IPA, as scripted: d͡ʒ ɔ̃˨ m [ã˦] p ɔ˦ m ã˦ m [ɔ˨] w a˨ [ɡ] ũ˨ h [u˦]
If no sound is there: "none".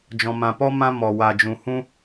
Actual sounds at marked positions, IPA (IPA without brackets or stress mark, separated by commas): ã˨, ɔ˨, d͡ʒ, ũ˦